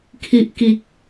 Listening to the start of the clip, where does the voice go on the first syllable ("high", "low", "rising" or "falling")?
low